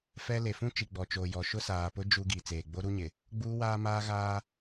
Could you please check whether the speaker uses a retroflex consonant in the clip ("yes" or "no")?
no